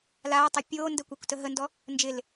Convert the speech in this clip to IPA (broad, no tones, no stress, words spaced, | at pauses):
laːtˤɛ pʲoːndə kʷɘːkʷtəɦəndɔ | nd͡ʒɪl